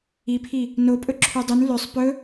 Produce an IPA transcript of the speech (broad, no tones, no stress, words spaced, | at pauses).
ipʰi | nopʼɵ ǁʰydˤʉn løsˤ pɵ